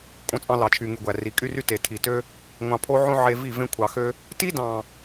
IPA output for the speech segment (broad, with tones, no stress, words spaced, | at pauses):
kʼõ˧t͡sʼɑ̃˧lɑ˨t͡ʃʰy˨ ŋy˨ ɡʷæ˨ri˨kʼy˦ry˦ te˨ tʰi˨tø˦ | ŋʷɑ̃˧pʰo˦ ʕõ˦ʕe˧vi˦˨ vẽ˧kʷʰɑ˨xø˧ | ti˦dɑ̃˨